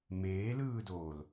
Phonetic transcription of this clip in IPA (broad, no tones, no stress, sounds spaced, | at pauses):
m eː l ɯː d oː l